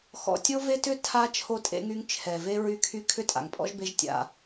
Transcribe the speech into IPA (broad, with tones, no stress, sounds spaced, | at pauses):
x ɔ̰˨ tʲ o˦ v e˦ t ʏ˦ tʰ a˦ t͡ʃʰ o˦ tʼ ḛ˦ ŋ y˦ ŋ t͡ʃʰ ɛ˨ v e˦ ɹ y˦ kʰ y˦ kʰ ʏ˦ tʼ a̰˨ ŋ pʼ ɔ̰˦ ʒ b e˦ ʒ tʲ a̰˦